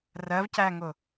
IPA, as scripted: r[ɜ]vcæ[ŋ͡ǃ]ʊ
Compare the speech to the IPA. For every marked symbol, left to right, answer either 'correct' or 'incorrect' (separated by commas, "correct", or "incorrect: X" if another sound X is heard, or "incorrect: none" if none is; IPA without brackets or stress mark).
correct, incorrect: ŋ